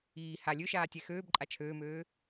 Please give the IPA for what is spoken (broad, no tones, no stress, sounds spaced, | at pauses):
iː h a lʲ ø ʃ aː tʲ ɛ x øː b ǃʼ a t͡ʃʰ øː m øː